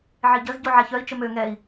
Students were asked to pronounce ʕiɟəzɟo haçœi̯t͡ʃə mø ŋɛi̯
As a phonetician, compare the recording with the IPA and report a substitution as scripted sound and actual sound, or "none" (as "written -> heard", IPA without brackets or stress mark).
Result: h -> ʕ